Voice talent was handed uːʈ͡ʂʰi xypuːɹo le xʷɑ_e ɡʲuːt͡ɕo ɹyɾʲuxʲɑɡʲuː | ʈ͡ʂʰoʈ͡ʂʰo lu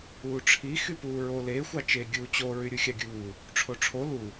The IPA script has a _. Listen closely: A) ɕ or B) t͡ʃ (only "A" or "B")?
B